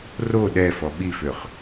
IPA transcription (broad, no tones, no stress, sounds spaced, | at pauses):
r o ɗ ɛ f ɔ ɓ i f ø χ